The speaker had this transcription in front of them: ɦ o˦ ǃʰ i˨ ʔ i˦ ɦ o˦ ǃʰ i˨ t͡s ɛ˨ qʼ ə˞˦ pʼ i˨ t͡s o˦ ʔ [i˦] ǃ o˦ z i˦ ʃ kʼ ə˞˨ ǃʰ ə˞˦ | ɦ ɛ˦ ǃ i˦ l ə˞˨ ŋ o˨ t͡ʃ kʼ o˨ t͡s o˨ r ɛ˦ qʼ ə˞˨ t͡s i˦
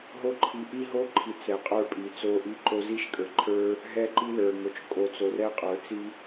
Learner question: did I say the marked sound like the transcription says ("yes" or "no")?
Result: yes